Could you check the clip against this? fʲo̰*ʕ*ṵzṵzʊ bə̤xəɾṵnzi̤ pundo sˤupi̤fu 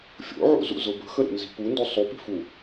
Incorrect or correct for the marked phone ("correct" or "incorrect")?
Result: correct